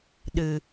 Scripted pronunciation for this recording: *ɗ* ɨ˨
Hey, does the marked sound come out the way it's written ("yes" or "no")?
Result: yes